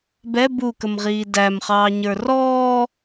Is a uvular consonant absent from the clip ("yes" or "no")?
no